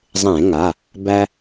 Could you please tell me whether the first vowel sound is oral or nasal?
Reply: nasal